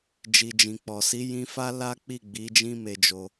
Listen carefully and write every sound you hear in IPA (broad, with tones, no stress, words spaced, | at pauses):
d͡ʒi˨d͡ʒĩ˨k͡pɔ˨si˨˦ jĩ˧fa˦ la˦k͡pi˦˨ɡ͡bi˨˦ d͡ʒĩ˦me˧d͡ʒo˧